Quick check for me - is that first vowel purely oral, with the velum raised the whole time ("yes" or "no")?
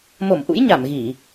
yes